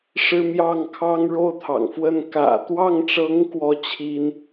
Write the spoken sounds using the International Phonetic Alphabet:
ʂ ɻ̩˥ m j ɑ˥˩ ŋ kʰ ɑ˥ ŋ ɻ o˥˩ ʊ̯ t̪ʰ ɑ̰˨˩ ŋ f w ə˥˩ n k ä̰˨˩ t̪ w ɑ˥˩ ŋ ʈ͡ʂ ɤ˧˥ ŋ k w ɔ˥˩ t͡ɕʰ i˥ n

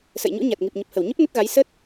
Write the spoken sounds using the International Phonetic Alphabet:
s ə̰˧˨ j ɲ ṵ˧˥ ɲ a˨˩ t̚ ŋ i˨˩ p̚ ɲ ə˨˩ p̚ h ə˧˩ w ɲ ə˦˥ p̚ n ə˦˥ t̚ ɣ a˨˦ j s ə˦˥ t̚

